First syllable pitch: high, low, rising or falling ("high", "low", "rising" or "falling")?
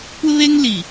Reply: high